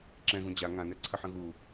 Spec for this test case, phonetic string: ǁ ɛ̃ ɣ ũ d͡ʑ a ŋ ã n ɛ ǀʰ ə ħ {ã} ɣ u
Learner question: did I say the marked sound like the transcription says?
no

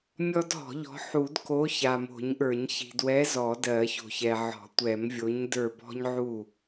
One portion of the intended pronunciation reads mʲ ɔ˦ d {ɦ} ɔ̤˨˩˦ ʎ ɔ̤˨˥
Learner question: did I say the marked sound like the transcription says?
yes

